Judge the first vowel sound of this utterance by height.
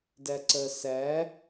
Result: low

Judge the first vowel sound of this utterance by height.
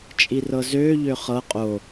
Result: high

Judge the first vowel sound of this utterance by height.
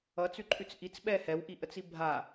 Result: mid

